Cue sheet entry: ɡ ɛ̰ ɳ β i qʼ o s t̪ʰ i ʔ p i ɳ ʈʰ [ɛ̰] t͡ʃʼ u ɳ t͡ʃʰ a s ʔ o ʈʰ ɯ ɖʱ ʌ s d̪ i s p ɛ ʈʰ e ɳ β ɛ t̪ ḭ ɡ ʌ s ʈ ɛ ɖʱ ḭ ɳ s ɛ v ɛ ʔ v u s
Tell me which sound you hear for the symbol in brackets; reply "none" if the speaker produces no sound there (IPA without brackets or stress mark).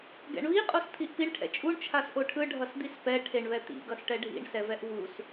ɛ̰